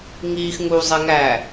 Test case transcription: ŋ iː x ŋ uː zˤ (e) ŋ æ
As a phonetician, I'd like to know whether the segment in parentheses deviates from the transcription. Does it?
no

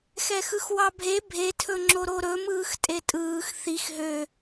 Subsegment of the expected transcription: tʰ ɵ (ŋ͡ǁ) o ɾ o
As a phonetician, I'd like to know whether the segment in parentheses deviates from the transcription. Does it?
no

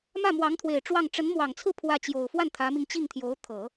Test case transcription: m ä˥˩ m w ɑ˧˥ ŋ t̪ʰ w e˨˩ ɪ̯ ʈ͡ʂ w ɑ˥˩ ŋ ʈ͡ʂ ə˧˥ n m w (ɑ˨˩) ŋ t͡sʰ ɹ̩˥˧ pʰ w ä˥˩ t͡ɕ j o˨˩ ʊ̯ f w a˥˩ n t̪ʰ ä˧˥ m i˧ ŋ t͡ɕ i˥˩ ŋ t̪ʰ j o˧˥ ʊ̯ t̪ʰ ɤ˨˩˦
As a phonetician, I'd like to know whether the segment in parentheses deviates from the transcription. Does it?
no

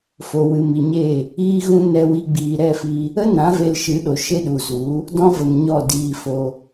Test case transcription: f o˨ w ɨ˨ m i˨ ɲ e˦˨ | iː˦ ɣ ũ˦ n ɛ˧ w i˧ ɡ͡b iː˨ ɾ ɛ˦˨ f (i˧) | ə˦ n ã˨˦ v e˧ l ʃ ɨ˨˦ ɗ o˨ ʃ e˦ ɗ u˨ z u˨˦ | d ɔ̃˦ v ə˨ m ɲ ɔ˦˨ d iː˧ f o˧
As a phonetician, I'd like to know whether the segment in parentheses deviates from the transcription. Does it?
no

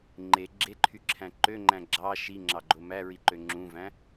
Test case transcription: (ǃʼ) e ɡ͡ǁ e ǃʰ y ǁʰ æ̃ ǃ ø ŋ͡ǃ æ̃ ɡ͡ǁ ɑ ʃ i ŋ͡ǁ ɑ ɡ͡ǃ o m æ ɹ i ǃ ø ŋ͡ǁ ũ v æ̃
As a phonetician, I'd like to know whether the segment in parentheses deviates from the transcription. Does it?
yes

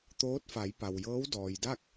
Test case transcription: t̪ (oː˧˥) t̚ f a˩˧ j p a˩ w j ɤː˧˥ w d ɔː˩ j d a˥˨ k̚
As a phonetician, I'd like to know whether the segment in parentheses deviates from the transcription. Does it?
no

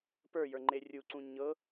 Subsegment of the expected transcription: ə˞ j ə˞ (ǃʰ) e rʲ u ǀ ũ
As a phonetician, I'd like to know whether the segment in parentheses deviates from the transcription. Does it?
yes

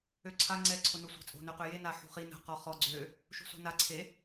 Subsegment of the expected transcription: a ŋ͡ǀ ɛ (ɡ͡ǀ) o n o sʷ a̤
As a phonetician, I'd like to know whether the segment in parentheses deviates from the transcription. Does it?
yes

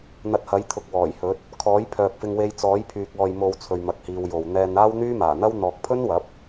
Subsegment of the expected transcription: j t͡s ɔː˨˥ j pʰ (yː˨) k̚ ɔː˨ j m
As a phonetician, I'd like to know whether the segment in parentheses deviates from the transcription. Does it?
no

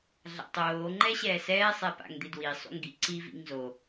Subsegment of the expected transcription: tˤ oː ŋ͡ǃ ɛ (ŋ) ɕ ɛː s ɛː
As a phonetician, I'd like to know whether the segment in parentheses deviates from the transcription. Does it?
yes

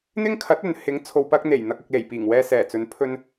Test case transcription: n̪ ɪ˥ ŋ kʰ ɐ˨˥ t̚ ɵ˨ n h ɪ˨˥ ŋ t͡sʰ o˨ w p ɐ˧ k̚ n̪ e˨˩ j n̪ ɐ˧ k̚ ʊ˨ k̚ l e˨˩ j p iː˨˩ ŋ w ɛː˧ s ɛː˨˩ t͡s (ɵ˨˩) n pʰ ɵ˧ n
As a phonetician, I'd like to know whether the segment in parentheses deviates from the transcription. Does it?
yes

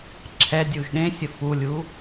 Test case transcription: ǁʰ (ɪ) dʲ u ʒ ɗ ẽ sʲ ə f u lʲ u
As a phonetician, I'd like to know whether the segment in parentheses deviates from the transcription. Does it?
yes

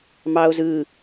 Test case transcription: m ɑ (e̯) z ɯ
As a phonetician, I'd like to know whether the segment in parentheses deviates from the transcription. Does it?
yes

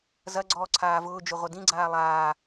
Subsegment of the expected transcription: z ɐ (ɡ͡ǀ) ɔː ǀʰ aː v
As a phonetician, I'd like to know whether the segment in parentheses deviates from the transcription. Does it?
no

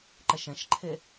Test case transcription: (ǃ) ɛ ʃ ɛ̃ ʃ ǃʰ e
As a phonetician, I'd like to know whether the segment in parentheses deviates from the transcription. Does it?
no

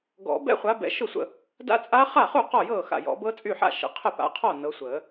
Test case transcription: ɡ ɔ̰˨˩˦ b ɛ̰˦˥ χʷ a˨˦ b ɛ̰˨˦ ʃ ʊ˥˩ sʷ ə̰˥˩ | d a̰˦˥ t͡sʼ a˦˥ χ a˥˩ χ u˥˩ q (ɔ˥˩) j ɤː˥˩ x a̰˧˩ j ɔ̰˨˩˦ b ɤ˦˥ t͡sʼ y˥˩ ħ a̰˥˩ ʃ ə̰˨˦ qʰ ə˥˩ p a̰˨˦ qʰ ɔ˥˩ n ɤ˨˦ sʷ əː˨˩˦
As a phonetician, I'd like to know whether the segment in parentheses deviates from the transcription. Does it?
no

